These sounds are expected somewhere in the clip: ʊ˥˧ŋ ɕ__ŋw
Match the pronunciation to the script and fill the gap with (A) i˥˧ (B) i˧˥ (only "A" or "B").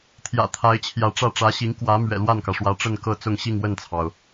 A